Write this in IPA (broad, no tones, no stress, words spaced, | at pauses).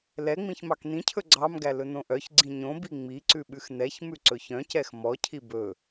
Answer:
lɛŋ͡mĩç mɑknĩcʰɵ ɡ͡ǀɑmɡæ lɵnõʔœçɡ͡ǀĩ ɲõbi ŋ͡miǀʉ ɓʉxnɛçmʉ ǀɵçœ̃cɛx mɔcʰi bɵ